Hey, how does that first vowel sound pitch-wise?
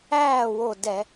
falling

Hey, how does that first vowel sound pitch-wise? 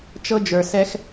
high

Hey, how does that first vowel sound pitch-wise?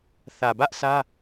low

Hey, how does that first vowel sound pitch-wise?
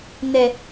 low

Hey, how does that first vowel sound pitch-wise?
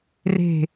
falling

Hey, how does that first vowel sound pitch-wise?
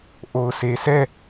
low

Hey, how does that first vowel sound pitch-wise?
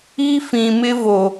high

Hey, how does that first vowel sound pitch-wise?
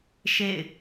falling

